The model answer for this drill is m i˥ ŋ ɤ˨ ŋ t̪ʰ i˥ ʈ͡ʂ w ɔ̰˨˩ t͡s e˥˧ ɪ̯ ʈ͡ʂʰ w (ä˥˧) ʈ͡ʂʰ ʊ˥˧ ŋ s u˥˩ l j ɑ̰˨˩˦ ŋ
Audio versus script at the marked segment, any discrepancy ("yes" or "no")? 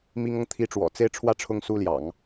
no